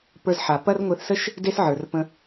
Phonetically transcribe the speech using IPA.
p ə˞˧ z ħ a˩ p ɐ˥ r ŋʷ e˧ θ s ə˥ ʃ | d e˥ s ʕ ə˞˩ r p ə̃˧

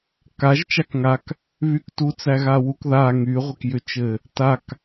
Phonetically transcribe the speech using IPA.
k a ʒ t͡ʃ a k ŋ a k | β y k t u t͡s æ ɣ a w u k ð a ŋ y ʁʷ ɘ k j ʏ t͡ʃ ɘ | t a k

